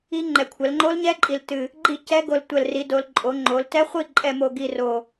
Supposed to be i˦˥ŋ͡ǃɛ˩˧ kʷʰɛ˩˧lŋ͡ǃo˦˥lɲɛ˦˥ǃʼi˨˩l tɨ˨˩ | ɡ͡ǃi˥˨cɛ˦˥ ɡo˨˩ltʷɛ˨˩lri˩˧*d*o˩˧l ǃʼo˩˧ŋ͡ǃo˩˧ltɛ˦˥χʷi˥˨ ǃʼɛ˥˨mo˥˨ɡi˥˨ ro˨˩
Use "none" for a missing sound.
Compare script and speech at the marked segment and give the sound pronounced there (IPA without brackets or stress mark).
d